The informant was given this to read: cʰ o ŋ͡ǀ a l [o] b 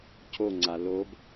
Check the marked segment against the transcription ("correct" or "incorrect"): correct